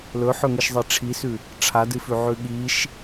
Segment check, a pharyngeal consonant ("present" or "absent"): present